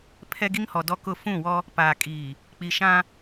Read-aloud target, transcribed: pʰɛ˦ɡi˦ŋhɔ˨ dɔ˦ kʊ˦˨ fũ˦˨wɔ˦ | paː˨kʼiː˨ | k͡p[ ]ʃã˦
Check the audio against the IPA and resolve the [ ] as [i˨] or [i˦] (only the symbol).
i˨